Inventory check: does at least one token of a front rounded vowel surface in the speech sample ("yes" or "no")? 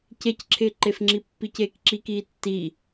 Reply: no